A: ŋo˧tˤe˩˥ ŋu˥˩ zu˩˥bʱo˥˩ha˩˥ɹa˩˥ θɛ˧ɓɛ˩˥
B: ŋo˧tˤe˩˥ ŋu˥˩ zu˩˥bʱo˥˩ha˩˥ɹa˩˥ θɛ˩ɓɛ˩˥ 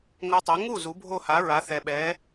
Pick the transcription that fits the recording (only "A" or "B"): B